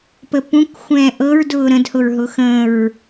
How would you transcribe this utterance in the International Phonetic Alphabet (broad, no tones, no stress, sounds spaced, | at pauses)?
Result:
p ə p ũ k xʷ ɛ̃ː ʔ ɤ ɹ d ʊː ɾ ə̃ d h ʊ ɹ ɦ ʊ x ə̃ ɹ